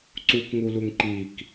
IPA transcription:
ǀ u k ŋ u l u ŋ ǃ i k

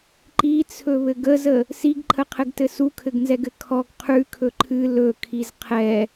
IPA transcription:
ǃ i t͡sʰ ɵ β ɘ ɡ ə z ə | s i ɡ ǃʰ ə qʰ ɘ ɡ t ɘ s u kʰ ɘ ɡ n z ɛ ɡ ɘ kʰ ɔ ɡ qʰ ʉ kʰ ɵ ǃʰ ɨ l ɵ kʰ i z qʰ ɛ

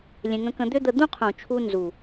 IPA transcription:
lʲ ẽ˧ ŋ ə̃˧˥ k ə̃˧ d̪ ʏ˥ d̪ ə˧ d̪ ũ˥ qʰ ũ˨˩ t͡ʃʰ u˧ n z u˨˩

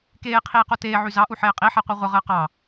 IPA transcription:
k eː qʰ iː q o t eː ʕ y z ɑ ʔ u ħ eː qʼ i ħ ɛ qʷ ɛ ʁʷ ə ʁ əː q ɑ

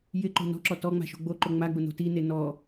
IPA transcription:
j ɪ ǃ o̤ n ɔ̤ ǁ ɔ t ɔ ŋ͡m a̤ ʃ o̤ ɡ͡b o ǃ o ŋ͡m a ɡ͡b ʊ n o̤ t i n e n ɔ

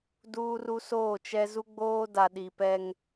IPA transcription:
d uː˦ r u˦ s oː˦˨ t͡ʃ ɛ˦ z u˦ ɡ͡b oː˦ d a˨ ɗ i˨ p ɛ˦ ŋ

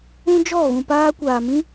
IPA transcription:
ũ˦ d͡ʒ ɔ˦˨ ɣ ũ˨ p aː˧ kʷ aː˨ m ĩ˧

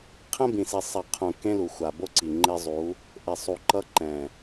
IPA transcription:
qʰ ɛ̃˦ b ĩ˨ s i˨ sˤ ɛ˨ qʰ ũ˨ k ẽ˦ l u˨ xʷ a˨ b o˦ ǀ i˨ ŋ͡ǃ e˦ zˤ u˨˦ | ʔ e˨ sˤ u˨ ǃ ʌ˦ ǃ ɛ̃˨

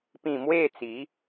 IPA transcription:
p ĩ˥˧ m w e˥˧ t͡s i˨˦

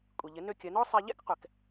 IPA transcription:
kʷʼ i˩ ʎ ɪ˩˧ n ø˧ kʲ ɐ˩˧ n ɔ˥ sˤ ɛ˧ ʎ ɛ̰˥ k qʷ ɛ˩ k

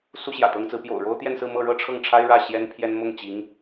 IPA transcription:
s u˥ ɕ j ä̰˨˩ t̪ ɤ˥ ŋ t͡s ɹ̩˧˥ p j o̰˨˩ ʊ̯ ɻ o˥ ʊ̯ t̪ j ɛ˥˧ n s ɹ̩˥˧ m ɤ˥˧ ɻ ɤ˥˧ ʈ͡ʂʰ ɤ˥˩ ŋ ʈ͡ʂʰ a˥ ɪ̯ ɻ ä˥˩ ɕ j ɛ˥ n pʰ j ɛ˥ n m ʊ˥˩ ŋ t͡ɕ i˧˥ ŋ

